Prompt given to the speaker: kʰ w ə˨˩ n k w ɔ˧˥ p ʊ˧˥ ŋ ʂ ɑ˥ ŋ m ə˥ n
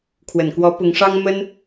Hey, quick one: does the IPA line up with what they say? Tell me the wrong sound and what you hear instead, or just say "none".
none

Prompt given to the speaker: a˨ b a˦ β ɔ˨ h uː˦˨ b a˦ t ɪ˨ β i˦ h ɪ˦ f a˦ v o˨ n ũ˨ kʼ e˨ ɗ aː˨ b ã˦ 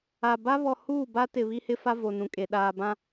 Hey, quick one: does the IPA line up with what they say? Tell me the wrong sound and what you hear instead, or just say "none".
none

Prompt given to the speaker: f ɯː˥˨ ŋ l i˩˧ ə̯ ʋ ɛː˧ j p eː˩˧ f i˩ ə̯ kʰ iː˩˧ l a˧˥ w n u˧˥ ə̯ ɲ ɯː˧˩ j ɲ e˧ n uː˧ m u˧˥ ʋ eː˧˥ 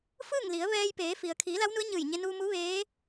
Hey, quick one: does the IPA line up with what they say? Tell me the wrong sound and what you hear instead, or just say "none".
none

